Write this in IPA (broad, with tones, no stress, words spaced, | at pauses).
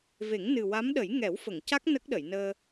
ve˨˩˦ŋnɨ˨˩wa˧˥mɗə˨˩˦j ŋɛ˨˩˦wfə˨˩˨ŋca˦˥k̚ nə˦˥k̚ɗə˨˩˨jnəː˧